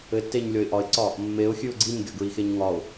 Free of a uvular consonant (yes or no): yes